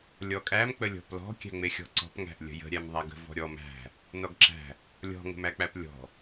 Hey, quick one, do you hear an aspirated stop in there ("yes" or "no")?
no